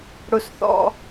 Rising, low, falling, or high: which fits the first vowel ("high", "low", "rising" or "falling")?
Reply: high